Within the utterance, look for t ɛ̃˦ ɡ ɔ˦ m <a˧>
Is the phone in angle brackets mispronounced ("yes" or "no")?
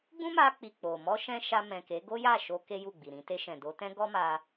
no